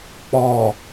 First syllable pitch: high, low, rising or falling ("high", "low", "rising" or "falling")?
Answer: low